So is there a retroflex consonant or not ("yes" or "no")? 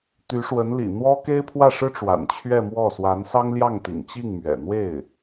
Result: yes